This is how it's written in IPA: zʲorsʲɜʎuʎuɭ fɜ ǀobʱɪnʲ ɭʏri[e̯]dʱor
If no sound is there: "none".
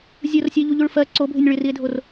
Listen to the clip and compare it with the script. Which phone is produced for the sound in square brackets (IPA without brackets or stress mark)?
e̯